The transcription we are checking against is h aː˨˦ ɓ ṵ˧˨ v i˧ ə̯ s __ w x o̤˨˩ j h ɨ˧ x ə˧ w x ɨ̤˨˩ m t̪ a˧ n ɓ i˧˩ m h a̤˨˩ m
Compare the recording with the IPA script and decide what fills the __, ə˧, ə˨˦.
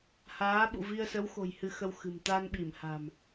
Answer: ə˨˦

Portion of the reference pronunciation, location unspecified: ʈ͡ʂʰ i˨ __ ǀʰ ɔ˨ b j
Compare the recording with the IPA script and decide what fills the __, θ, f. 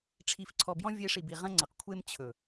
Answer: f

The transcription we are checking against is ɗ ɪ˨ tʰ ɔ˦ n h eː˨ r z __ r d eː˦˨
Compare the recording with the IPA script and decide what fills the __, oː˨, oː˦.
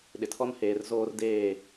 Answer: oː˦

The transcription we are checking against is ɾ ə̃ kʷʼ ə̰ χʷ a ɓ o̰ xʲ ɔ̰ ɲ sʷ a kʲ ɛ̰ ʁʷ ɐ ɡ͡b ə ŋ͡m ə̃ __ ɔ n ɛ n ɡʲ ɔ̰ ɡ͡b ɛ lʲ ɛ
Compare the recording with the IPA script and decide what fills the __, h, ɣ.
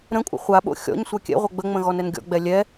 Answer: ɣ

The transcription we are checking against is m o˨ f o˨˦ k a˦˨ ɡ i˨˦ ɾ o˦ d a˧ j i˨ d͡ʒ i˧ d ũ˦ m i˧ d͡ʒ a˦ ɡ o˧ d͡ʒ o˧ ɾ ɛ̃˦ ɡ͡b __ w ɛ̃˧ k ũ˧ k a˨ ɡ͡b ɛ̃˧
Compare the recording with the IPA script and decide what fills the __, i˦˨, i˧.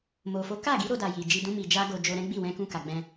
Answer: i˦˨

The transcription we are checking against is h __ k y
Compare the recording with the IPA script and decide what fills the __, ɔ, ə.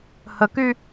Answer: ə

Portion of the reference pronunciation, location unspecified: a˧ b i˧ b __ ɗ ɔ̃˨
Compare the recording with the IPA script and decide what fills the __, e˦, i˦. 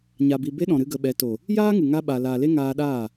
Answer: e˦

